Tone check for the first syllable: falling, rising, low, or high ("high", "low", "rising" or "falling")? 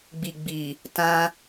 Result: low